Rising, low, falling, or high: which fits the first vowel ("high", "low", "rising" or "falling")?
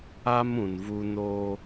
high